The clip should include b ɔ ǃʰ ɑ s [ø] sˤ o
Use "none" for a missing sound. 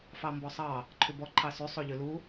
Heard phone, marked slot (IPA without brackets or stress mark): ʉ